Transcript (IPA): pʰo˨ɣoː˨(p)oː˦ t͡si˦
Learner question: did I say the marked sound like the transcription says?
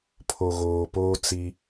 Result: yes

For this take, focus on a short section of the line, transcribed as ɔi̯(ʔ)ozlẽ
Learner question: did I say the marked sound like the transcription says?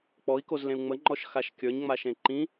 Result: no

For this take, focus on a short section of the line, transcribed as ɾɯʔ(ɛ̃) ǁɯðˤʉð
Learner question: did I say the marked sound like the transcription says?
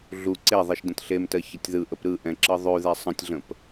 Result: yes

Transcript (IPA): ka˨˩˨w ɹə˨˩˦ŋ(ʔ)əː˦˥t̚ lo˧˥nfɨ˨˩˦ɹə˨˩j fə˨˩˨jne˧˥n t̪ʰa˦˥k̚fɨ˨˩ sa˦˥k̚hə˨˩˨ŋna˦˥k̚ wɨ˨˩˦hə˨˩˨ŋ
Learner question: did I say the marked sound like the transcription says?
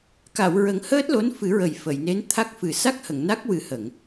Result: no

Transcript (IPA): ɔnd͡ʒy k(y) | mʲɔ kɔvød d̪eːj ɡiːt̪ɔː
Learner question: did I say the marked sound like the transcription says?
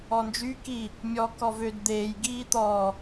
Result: no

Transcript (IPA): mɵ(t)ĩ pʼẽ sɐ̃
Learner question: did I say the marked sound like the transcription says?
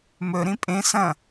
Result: no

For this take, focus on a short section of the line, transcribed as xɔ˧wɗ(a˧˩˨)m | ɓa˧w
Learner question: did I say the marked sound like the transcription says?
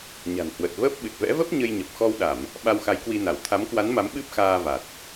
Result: yes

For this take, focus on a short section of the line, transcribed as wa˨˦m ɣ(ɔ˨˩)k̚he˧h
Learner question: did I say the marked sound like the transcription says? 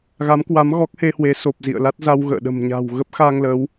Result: no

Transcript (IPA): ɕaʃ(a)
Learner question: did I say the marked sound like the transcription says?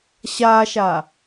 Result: yes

